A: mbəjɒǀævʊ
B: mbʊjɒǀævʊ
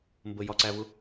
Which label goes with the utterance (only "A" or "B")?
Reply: A